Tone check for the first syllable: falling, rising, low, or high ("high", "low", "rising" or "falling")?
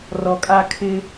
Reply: low